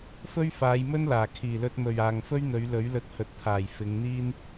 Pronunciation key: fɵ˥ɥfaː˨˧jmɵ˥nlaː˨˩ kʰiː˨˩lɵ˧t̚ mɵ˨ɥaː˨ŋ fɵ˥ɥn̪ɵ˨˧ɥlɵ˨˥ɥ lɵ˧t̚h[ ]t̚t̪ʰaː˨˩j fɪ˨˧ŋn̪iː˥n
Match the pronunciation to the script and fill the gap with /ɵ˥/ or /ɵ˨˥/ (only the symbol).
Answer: ɵ˨˥